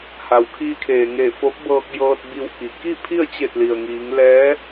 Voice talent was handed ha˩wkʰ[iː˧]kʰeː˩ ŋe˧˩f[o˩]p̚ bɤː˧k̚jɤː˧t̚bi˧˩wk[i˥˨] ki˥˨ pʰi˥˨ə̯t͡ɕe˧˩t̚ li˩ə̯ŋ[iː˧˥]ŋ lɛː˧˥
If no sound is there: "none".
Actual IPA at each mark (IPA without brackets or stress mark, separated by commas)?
iː˧, o˧˥, i˩, iː˩˧